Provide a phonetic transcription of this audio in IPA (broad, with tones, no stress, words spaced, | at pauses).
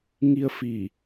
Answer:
ŋi˧ə̯ fi˧˩